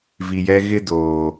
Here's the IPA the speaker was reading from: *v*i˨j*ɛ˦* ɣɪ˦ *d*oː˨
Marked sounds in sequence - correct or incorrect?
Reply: correct, correct, correct

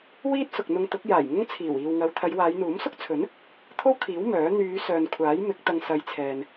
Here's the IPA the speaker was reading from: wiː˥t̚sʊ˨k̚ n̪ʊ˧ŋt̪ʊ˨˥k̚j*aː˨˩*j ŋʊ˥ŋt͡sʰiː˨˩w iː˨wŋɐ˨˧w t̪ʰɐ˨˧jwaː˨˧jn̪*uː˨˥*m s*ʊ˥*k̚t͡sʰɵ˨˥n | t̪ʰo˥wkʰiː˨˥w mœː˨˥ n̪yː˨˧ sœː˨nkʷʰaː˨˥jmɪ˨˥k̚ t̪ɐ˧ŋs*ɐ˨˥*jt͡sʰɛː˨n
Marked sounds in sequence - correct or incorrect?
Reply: correct, correct, correct, incorrect

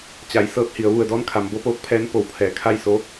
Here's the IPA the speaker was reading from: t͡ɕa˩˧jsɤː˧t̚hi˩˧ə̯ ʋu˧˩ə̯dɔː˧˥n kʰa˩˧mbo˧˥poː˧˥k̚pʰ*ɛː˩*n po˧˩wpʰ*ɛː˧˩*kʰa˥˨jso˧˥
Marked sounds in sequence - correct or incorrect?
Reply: incorrect, correct

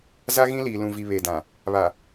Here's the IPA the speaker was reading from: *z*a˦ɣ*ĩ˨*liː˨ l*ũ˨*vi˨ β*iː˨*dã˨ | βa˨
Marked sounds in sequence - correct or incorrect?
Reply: correct, incorrect, correct, incorrect

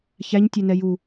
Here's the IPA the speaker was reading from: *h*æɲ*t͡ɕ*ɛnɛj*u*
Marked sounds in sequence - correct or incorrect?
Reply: incorrect, incorrect, correct

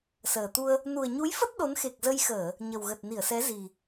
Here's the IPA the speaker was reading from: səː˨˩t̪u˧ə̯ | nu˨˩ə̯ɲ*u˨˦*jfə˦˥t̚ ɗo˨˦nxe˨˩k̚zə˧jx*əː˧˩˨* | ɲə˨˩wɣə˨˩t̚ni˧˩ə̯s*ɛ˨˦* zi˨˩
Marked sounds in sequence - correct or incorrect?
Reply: correct, correct, correct

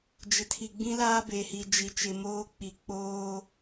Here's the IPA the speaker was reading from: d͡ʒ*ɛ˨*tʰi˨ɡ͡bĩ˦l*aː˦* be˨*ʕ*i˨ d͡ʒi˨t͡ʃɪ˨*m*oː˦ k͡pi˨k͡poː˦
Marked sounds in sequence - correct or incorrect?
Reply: incorrect, correct, incorrect, correct

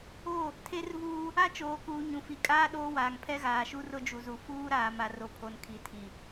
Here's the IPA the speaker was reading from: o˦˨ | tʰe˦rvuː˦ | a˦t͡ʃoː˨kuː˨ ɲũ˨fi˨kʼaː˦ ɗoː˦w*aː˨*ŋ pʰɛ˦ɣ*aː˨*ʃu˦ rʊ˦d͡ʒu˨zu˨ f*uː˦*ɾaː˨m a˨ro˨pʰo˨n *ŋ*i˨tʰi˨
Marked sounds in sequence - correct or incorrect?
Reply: correct, correct, correct, incorrect

